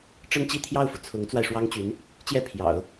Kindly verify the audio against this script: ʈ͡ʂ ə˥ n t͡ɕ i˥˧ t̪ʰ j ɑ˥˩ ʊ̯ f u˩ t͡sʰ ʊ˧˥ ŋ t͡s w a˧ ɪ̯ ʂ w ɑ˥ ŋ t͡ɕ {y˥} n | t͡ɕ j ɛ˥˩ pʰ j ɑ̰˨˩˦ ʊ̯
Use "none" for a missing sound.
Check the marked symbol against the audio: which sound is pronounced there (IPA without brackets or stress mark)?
y˧˥